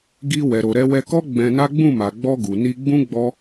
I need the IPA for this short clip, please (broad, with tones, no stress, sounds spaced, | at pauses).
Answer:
ɡ i˧ w ɛ˨ ɾ o˨ ɾ ɛ˧ w ɛ˧ k ɔ˦ ɡ͡b ɛ̃˧ n a˦ ɡ͡b ũ˦˨ m a˨ ɡ͡b ɔ˧ ɡ u˨ n i˧ ɡ͡b ũ˦ ɡ͡b ɔ˦